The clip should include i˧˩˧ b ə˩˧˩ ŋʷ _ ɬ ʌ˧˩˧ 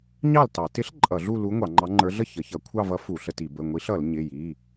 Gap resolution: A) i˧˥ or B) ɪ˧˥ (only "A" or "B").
A